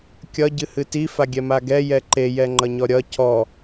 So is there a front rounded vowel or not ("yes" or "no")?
no